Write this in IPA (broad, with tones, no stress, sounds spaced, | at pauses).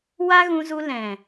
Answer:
w a˦ ɣ ũ˧ z u˧ l ɛ̃˨